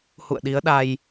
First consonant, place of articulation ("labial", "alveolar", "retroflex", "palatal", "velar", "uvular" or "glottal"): glottal